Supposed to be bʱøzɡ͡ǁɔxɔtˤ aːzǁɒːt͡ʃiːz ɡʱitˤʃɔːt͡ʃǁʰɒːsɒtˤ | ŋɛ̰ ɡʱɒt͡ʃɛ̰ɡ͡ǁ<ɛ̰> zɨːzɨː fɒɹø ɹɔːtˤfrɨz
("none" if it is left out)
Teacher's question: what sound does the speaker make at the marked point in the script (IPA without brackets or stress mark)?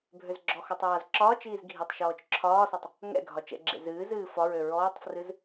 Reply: ḛ